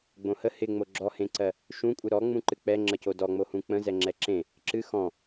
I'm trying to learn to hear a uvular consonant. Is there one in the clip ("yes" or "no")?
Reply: no